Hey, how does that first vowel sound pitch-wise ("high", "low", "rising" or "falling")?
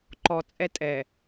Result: low